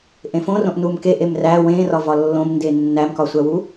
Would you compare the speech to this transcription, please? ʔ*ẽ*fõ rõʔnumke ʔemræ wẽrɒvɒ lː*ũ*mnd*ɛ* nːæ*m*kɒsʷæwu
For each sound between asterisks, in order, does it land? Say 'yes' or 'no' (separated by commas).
yes, no, no, yes